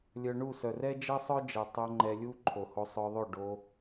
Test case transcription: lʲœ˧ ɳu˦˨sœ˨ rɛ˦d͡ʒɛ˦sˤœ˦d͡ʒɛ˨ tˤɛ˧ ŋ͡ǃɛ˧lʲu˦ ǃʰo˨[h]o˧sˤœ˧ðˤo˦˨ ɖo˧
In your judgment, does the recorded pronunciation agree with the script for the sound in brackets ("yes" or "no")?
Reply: yes